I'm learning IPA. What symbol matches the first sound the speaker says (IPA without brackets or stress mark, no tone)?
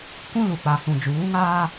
kʷ